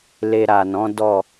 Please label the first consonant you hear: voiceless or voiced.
voiced